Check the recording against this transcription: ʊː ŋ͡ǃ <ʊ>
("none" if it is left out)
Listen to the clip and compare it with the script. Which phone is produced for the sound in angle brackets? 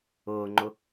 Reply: ʊ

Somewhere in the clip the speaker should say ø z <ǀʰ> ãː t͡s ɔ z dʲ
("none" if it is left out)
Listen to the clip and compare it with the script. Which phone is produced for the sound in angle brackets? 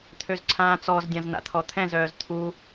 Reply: ǀʰ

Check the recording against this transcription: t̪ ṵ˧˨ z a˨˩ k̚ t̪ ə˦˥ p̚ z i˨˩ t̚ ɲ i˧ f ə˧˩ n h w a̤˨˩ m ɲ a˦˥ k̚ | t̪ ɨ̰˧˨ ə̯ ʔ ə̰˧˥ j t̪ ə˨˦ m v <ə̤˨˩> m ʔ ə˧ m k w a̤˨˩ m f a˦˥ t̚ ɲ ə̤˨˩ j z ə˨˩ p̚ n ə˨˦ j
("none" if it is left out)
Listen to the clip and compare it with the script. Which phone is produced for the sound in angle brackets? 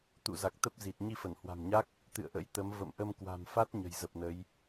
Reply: ə̰˧˨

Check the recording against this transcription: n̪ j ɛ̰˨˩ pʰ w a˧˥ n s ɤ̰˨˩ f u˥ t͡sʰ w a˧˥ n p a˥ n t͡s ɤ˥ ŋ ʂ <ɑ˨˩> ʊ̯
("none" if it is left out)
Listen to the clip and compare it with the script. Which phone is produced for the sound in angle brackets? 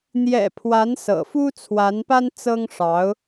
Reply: ɑ˧˥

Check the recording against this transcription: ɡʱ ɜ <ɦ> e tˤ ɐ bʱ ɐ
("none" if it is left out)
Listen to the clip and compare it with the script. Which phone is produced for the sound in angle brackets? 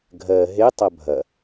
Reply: ɦ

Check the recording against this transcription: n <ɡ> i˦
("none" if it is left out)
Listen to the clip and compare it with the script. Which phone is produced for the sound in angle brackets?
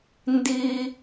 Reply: d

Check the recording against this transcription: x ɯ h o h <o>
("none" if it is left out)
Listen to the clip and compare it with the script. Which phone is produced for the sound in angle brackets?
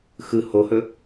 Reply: ɵ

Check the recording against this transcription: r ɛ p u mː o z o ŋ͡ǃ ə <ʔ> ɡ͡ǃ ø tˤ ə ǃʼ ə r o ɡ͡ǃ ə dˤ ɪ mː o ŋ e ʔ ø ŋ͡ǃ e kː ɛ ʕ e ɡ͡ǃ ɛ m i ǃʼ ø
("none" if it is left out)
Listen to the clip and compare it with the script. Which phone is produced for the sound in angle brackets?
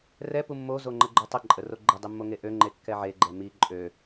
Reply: none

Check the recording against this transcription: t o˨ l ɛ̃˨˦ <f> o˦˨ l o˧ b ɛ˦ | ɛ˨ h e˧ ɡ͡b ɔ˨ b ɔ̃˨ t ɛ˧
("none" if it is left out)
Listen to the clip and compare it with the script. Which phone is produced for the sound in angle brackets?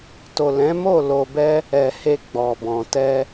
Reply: m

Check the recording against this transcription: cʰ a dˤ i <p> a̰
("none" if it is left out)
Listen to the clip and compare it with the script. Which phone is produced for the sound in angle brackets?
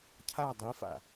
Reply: f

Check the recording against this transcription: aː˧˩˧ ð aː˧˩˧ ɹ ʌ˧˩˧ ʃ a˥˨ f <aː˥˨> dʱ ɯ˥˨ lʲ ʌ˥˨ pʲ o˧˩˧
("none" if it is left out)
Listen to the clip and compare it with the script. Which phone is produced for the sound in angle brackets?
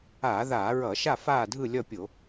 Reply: aː˥˨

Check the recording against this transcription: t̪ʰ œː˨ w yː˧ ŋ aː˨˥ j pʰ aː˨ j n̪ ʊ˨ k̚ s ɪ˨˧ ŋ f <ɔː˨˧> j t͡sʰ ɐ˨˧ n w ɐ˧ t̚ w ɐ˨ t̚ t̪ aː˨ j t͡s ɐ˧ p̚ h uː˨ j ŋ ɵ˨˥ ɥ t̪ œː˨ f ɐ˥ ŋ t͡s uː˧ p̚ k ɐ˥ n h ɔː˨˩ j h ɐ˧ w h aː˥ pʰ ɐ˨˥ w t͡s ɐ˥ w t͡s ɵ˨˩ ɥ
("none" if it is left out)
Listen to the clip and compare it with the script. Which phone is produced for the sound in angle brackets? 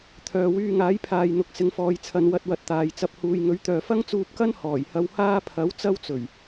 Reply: ɔː˨˧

